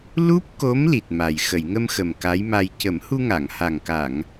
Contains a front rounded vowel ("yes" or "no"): no